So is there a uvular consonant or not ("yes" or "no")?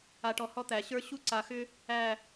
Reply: no